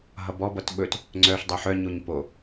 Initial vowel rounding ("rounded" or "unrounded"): unrounded